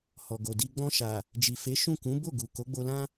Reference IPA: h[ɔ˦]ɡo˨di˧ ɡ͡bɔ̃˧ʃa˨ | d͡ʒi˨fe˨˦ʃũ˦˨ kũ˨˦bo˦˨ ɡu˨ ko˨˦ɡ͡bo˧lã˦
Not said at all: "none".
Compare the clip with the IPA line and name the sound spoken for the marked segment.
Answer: ɔ˨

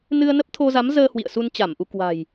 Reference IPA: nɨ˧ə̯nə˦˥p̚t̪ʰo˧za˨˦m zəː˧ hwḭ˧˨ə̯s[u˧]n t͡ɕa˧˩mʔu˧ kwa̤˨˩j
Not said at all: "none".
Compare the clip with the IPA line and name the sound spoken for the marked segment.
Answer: u˧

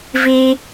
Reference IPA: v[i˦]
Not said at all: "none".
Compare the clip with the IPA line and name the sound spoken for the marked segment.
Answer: iː˦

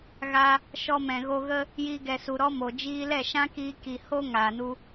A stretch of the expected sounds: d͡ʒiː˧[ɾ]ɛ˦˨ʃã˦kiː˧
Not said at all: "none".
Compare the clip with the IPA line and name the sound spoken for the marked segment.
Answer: l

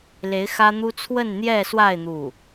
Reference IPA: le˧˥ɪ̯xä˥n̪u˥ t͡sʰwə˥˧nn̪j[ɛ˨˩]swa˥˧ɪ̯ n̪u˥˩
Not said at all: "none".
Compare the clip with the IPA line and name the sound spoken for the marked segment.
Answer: ɛ˥˧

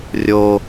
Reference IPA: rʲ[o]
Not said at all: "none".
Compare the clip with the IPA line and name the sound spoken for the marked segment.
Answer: o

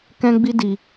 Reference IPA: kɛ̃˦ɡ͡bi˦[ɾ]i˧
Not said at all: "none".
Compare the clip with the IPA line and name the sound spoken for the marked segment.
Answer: d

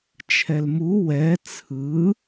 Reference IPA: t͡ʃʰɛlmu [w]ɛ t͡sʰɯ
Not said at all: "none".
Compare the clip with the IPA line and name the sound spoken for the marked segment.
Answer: w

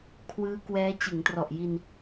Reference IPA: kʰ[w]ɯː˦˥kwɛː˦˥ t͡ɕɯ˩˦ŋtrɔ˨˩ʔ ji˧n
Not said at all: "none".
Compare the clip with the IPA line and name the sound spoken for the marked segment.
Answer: w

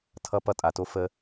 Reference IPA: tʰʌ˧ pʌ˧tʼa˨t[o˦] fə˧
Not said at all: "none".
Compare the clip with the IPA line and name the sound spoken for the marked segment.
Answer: o˧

